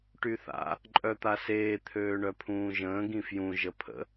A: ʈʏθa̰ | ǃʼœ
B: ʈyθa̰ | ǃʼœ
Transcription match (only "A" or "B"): B